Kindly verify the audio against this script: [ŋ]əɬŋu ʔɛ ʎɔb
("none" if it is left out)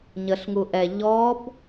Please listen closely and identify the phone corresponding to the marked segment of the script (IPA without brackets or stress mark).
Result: ɲ